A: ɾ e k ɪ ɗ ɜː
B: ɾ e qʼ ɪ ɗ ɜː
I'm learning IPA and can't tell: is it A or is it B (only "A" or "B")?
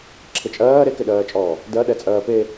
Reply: A